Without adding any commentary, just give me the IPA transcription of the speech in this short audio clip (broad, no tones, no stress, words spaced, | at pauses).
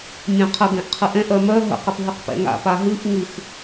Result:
mʲœ̃qʰə ɡɛ̃ʔqʰɨʔɛ̃ʔ œmœ ɦə̰ qəpɦɨqpɛ̰ŋa̰ paɦɨʔ ŋɨx